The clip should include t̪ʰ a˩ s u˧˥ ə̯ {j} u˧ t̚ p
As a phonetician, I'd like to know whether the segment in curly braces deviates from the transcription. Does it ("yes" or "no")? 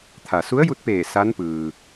no